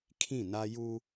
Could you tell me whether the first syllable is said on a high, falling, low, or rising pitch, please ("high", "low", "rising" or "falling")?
falling